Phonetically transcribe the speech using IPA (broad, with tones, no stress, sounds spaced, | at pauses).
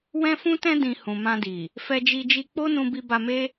w ɛ̃˦ f ũ˦ t ɛ̃˦ d ĩ˧ h ũ˨ m ã˧ d i˨ | f ɛ˧ d͡ʒ i˧ d͡ʒ i˧ k͡p o˦ n ũ˧ b i˧ b a˧ m e˦